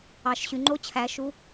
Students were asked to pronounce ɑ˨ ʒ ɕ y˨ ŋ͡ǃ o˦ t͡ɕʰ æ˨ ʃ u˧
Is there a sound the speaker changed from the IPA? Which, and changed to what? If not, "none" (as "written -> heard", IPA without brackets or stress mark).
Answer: ʒ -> ʃ